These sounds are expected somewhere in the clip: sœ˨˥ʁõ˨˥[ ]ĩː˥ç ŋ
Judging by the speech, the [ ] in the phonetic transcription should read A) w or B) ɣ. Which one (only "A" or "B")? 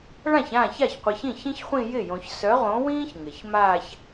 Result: A